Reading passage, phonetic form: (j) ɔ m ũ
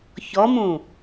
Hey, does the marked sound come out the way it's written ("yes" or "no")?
no